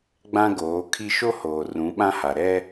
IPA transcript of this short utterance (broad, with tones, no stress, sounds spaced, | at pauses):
ɡ͡b ã˦ ɡ oː˨˦ kʰ i˦ ʃ o˦ h oː˨ r ũ˨˦ ɓ ã˦ h a˨ ɾ ɛ˦